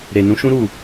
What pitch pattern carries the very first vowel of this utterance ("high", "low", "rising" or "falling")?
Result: low